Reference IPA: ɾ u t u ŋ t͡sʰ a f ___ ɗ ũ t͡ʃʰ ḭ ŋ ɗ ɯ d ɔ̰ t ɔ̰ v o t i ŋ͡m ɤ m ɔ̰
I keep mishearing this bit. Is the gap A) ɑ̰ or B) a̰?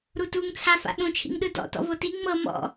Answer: B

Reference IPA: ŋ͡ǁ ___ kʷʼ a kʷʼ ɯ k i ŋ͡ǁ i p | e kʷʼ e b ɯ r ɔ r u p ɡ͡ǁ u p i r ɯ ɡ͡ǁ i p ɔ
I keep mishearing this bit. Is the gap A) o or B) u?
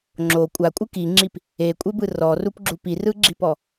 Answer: A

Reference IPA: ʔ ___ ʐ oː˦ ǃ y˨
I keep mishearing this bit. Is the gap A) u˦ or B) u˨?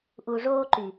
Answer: B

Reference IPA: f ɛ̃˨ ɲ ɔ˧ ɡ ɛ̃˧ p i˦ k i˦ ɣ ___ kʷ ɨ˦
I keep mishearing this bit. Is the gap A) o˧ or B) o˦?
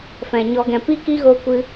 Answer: B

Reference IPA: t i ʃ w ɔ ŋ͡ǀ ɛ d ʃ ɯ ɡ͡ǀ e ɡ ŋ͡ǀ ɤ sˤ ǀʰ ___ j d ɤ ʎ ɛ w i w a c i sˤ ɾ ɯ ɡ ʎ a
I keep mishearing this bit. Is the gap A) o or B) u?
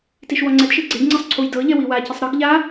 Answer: B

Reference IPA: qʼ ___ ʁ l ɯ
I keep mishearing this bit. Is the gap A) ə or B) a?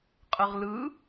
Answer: A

